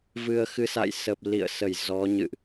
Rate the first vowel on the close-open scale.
close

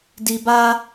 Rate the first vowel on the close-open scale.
close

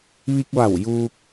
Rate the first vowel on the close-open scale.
close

